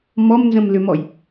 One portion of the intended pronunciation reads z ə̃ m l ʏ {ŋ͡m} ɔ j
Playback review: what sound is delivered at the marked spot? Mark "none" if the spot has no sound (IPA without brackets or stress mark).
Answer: m